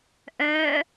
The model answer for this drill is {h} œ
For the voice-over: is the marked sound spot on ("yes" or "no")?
no